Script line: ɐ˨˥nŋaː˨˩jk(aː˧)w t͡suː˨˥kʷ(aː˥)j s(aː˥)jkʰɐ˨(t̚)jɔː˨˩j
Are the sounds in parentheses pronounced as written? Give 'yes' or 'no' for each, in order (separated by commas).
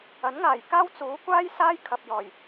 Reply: no, yes, yes, no